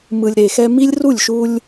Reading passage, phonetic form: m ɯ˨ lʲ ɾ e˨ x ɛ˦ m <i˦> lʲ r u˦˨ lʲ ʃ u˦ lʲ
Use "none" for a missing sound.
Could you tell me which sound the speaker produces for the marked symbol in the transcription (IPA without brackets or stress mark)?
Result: i˦